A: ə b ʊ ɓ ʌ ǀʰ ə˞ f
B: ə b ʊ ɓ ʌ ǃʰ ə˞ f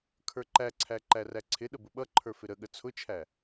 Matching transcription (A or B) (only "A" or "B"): B